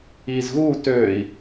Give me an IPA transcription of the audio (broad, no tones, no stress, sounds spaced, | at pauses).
iː z ɣ uː t øː i̯